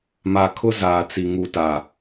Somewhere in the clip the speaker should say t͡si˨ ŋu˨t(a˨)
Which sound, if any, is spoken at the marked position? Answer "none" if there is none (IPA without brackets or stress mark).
a˨